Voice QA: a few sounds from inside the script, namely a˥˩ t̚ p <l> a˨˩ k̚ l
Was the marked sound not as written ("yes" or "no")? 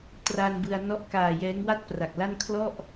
yes